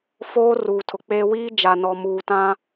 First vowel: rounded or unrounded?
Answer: rounded